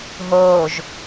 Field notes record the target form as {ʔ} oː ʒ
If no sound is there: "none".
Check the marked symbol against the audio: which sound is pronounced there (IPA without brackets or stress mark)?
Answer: ɦ